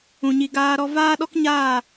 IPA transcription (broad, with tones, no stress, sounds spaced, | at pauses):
ũ˨ ɲ i˨ ɡ aː˧ ɾ ɔ˧ v aː˦ ɗ ɔ˦ k ɲ aː˦˨